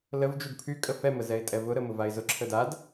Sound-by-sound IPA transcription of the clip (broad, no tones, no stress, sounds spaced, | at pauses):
l ə v d͡ʒ u d pʰ y kʼ ə f ɛ m ə z ɛ ɪ̯ tʼ ɛ v ʊ ɾ ə m ʊ v a ɪ̯ z ʊ ǁʰ ə d a d